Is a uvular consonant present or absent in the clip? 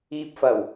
absent